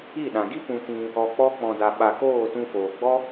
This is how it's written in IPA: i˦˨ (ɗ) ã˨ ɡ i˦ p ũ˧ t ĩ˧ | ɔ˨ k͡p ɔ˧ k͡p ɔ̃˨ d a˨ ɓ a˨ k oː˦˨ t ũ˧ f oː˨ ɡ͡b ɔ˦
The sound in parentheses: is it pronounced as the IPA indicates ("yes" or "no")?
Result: yes